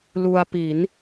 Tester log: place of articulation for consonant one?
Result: alveolar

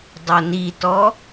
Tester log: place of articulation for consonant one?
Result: alveolar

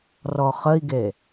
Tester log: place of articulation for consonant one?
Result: alveolar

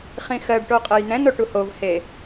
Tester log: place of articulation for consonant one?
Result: uvular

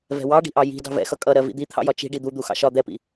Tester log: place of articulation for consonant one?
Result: labial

